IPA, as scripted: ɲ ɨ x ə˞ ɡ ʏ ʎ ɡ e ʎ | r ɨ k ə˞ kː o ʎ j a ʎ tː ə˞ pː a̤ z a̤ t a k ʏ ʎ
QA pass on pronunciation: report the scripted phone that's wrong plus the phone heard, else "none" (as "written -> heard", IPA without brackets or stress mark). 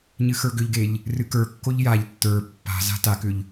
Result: none